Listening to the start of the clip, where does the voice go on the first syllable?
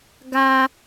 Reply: high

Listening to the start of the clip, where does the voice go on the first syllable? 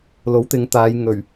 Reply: rising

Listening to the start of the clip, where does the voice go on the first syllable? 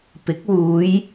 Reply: rising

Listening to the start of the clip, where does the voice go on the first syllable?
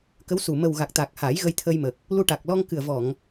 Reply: rising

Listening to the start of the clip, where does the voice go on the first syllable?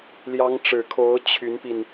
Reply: rising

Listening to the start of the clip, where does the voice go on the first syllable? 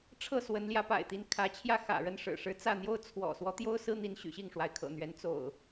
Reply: falling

